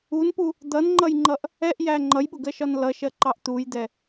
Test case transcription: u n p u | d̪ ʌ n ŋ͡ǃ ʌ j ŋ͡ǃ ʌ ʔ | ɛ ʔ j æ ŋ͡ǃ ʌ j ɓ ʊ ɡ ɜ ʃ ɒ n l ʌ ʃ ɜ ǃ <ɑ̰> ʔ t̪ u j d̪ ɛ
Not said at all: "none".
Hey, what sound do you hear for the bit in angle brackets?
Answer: ɑ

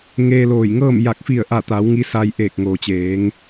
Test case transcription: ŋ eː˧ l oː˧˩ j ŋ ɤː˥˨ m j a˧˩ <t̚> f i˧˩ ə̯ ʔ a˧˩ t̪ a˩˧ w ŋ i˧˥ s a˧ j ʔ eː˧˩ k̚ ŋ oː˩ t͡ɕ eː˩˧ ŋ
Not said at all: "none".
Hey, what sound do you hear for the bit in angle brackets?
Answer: k̚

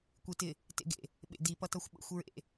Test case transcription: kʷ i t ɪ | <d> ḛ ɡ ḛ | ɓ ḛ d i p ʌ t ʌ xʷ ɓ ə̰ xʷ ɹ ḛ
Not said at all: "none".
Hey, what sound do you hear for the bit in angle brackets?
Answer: t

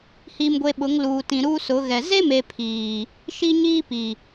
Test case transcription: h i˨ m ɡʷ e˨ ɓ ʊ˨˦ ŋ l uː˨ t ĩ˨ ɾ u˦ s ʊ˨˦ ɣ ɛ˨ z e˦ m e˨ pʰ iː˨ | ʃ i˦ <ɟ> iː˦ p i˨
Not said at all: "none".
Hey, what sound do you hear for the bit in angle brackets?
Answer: ɲ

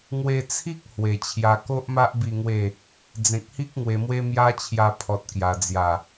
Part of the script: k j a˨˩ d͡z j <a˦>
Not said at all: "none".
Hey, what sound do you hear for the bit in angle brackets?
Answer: a˨˩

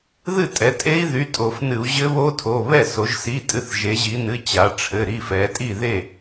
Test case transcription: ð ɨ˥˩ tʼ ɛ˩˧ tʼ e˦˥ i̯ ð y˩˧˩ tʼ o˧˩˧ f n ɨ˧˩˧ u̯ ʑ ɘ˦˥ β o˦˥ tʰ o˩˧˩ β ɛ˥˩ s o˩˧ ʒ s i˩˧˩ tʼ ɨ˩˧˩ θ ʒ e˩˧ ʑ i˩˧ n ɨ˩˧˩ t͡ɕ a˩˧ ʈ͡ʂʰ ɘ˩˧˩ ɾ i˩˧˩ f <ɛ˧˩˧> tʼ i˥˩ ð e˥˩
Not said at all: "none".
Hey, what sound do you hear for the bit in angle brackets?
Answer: ɛ˩˧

